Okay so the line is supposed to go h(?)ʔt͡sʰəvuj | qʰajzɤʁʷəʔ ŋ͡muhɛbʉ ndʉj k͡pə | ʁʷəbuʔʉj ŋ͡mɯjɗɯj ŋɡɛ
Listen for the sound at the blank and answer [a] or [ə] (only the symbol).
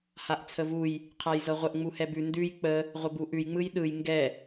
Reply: a